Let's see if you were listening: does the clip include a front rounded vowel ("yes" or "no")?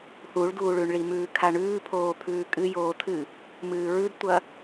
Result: no